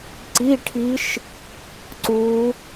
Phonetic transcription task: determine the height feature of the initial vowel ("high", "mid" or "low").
high